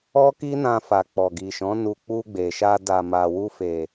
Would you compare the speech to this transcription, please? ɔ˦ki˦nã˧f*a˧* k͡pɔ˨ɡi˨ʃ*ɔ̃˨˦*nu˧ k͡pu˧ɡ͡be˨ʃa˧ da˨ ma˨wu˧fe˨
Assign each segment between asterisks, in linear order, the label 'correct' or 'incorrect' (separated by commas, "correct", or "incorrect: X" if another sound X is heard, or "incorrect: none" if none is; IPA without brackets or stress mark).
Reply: incorrect: a˨, correct